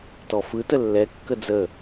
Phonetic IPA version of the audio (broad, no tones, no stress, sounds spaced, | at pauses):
t ɔ f ɯ t ə lː ɛ kː ə d͡z ə